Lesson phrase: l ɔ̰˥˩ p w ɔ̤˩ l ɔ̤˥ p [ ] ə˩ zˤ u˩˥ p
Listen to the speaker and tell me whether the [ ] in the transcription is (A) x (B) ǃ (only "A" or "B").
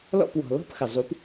A